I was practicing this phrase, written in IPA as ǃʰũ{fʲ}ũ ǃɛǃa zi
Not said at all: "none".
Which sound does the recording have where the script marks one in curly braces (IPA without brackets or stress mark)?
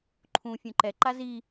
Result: fʲ